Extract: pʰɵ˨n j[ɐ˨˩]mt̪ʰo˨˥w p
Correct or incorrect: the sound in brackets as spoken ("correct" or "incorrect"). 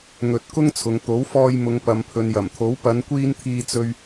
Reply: correct